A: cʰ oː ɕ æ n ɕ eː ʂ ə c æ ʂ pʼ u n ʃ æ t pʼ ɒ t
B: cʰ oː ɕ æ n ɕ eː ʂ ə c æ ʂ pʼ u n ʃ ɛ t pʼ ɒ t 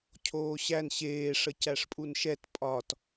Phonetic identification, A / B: B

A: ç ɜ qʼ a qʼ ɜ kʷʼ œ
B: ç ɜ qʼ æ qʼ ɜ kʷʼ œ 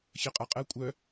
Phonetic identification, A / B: A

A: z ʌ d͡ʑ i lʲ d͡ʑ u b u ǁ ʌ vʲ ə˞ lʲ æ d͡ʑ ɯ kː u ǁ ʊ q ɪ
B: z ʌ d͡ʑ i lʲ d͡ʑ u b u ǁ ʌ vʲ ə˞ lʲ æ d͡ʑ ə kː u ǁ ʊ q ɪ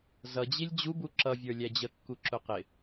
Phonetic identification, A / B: B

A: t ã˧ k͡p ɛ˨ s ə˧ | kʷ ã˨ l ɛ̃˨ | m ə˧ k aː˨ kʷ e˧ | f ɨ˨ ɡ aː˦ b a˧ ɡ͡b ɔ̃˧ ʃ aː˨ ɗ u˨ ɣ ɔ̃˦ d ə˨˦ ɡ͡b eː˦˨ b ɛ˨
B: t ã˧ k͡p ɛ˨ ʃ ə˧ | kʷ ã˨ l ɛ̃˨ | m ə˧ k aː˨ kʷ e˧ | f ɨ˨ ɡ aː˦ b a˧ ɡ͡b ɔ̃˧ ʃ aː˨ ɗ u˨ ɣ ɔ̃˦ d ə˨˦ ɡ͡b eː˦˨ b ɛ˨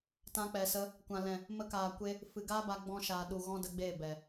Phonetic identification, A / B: A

